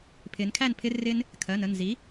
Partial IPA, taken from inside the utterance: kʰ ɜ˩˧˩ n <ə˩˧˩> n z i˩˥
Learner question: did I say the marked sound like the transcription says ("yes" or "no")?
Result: yes